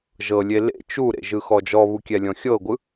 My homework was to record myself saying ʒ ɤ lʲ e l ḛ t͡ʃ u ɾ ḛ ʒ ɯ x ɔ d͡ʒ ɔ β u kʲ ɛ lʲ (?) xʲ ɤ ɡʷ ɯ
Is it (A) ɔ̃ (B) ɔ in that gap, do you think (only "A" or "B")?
A